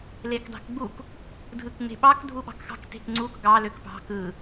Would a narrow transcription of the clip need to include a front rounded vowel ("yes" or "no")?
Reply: yes